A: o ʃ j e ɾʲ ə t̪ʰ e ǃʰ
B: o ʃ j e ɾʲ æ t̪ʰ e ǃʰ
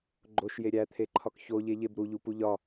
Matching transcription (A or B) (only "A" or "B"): B